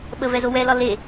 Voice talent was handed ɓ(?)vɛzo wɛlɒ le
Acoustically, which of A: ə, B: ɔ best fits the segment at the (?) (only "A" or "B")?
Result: A